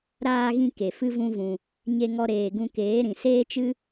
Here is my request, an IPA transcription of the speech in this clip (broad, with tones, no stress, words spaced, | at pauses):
ɾaː˧ɣĩ˧ ke˨fɨ˦vũ˦vũ˧ | ɲe˧ŋɔ˧ ɾeː˨ɡũ˧keː˨˦ɾĩ˨ seː˦t͡ʃɨ˦